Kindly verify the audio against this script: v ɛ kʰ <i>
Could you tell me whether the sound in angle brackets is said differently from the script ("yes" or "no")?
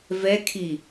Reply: no